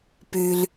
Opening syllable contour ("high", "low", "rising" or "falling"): low